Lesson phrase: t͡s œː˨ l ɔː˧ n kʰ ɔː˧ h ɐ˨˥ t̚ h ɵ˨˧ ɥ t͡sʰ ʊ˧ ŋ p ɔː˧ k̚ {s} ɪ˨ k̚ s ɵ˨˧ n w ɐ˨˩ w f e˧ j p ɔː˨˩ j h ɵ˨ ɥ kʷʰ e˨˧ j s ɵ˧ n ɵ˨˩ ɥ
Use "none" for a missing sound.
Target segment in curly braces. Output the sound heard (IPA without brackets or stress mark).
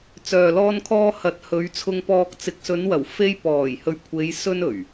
t͡s